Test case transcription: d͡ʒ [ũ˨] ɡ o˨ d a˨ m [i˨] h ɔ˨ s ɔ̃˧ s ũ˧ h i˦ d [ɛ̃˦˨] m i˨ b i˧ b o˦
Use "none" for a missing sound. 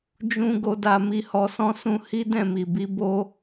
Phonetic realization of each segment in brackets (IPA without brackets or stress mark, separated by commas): ũ˨, i˨, ɛ̃˦˨